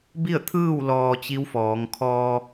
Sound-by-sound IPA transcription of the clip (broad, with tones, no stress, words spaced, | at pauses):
bi˥˨ə̯t̪ʰɯː˥˨w lɔː˧t͡ɕi˧˥wfɔː˩˧ŋkʰɔː˧